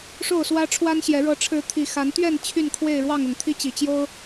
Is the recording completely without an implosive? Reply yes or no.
yes